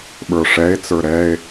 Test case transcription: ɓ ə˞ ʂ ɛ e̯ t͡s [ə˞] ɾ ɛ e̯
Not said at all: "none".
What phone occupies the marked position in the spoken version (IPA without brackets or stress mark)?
ə˞